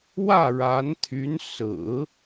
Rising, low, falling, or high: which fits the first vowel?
falling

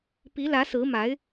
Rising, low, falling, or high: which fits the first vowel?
rising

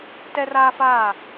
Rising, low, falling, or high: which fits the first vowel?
high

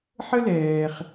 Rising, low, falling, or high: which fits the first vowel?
high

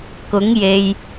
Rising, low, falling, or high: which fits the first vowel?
rising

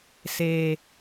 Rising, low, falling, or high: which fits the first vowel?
low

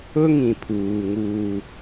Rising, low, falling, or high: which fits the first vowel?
high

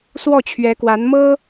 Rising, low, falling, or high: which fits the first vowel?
falling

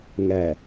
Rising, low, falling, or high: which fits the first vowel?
low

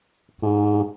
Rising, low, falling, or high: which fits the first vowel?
high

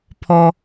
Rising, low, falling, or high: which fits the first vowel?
high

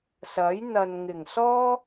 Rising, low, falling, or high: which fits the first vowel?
rising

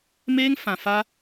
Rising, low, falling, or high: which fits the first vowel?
high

